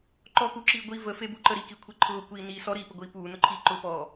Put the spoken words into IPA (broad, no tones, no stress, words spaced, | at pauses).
ǃɔkuǁiː ɡʷi vəfebuǃə ɾikikʷʰe ǃʰʊːkʷiːniː sɔɾiːpəɡʷiː puːnʊǃʰiː ǃʊpɔː